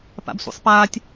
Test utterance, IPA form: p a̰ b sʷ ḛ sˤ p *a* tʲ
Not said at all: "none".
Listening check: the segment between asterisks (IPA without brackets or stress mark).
aː